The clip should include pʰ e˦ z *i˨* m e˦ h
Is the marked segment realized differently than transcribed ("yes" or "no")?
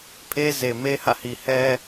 yes